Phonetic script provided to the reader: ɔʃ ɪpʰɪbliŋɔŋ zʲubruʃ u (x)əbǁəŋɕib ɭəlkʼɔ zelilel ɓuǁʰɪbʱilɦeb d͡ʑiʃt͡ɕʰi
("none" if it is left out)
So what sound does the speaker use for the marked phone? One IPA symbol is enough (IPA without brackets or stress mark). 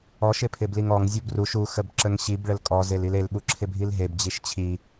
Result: x